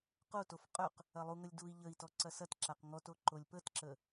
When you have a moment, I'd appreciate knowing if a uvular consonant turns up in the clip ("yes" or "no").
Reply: yes